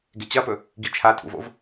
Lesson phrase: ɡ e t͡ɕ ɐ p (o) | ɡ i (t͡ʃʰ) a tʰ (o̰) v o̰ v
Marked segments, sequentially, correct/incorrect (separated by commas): incorrect, correct, incorrect